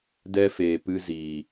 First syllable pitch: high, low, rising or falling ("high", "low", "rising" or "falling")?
high